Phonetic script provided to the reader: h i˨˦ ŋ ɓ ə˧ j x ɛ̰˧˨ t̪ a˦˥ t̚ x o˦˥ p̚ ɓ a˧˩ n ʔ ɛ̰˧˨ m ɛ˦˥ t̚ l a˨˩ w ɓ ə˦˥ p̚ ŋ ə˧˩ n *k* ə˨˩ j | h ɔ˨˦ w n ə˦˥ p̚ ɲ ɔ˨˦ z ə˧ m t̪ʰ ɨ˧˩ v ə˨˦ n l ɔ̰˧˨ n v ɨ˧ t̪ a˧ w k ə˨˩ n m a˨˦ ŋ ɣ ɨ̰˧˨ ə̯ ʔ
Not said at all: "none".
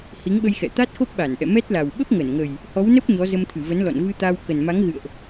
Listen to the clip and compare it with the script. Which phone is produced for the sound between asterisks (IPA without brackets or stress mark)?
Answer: ŋ